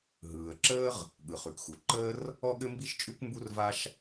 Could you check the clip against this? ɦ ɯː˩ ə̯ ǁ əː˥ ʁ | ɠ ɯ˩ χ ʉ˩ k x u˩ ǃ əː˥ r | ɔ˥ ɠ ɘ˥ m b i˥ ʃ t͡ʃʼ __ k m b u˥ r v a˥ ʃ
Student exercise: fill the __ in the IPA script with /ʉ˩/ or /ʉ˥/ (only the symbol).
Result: ʉ˥